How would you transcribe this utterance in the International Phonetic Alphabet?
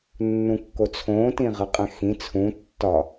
nː ũ kː o t͡sʰ õː t ĩ ʁ ə qʼ ɛ̃ x ĩ t͡sʰ ũ tː ɒ

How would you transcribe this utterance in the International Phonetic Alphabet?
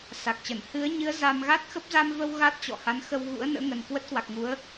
s a˨˩ k̚ t͡ɕ ə˧˩ n h ɨ˨˦ ə̯ ɲ ɨ˨˦ ə̯ z a˧ m ɣ a˦˥ t̚ x ə˦˥ p̚ z a˧ m v ə˧ w ɣ a˦˥ t̚ t͡ɕ ɔ̰˧˨ h a˨˦ n x ə˧ w ɣ ṵ˧˥ ə̯ n ə̰ː˧˥ ŋ ə˨˩ n k w ə˦˥ t̚ k w a˨˩ k̚ ŋ u˨˦ ə̯

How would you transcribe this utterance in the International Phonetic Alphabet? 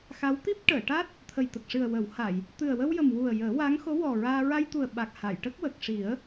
x a˧˥ w t̪ i˦˥ p̚ ʈ əː˨˩˨ ʈ a˦˥ t̚ | t̪ʰ ə˨˩ j t̪ ə˨˩ k̚ ʂ ɨ˨˩ ə̯ w ə˨˩˦ w h a˨˩˨ j | t̪ ɨ˨˩ ə̯ w ə˧ w j ə˨˩ m w u˨˩ ə̯ j əː˨˩˦ w a˧˥ ŋ x o˧˥ w ɔ˨˩ ɹ aː˧ ɹ a˧ j t̪ u˨˩ ə̯ ɓ a˨˩ k̚ h a˨˩˨ j ʈ ə˦˥ k̚ w ə˨˩ k̚ ʂ i˨˩˦ ə̯

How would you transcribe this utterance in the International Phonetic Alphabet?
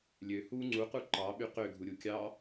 lʲ ø h u ŋ͡ǀ u q u ǃ ɑ ɓ y q ø ɡʱ u ɾʲ u kʲ ɑ

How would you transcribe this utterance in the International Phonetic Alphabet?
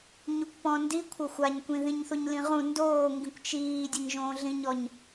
ɲ u kʷ p ɔ̃ n d i kʷʰ ɐ xʷ a ɲ kʷ ĩ ð ĩ ɲ θ u ɲ l ĩ ʁ ũ n d oː ŋ ɡ ĩ kʷ t͡ʃ iː dʲ ɐ ɲ ʒ õː ɮ ĩ ɲ ɔ ɲ

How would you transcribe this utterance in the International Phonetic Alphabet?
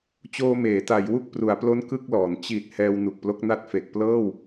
t͡ɕ oː˧ m eː˩˦ t a˩˦ j w u˥˩ k̚ p r u˩˦ a̯ p l o˦˥ n k ɯ˥˩ k̚ l ɔː˩˦ n t͡ɕ i˨˩ t̚ h ɛː˧ w n u˨˩ k̚ p l o˦˥ k̚ n a˥˩ t̚ f e˨˩ k̚ p l ɤː˥˩ w

